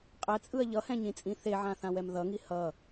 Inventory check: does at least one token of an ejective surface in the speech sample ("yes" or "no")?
yes